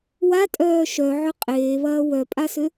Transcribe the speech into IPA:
watʼœː ʃœʕʏ qʼeːβɐː wœpʼasʏ

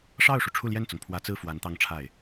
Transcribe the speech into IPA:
ʂɑ˥˩ʊ̯ʂu˩ ʈ͡ʂʰu˥˧ljɛ˥˩nt͡sʊ˩ŋ pʰwä˧˥t͡sɹ̩˥˩ fwa˧˥nt̪ɑ˥˧ŋʈ͡ʂʰa˥˩ɪ̯

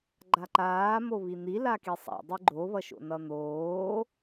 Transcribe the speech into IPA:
ɡ͡ǃaǃaː moβin̪i lakisˤa̰ dˤiɡ͡ǃo βʌʃo̰nʌn̪oː

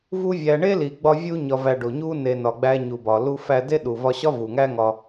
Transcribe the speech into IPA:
vu˦vʲæ˧ ɳe˦li˨ɡ͡bɒ˧ vʲu˧ɲɒ˨væ˨ ɖo˨ ɲu˧ne˨ nɒ˨ɡ͡bæ˧ɲu˨bɒ˨ lu˧fæ˧de˦ ɗu˨vɒ˧ɕɒ˦ vu˨ ŋæ˦ŋɒ˧

